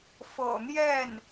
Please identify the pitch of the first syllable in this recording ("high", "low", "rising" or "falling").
low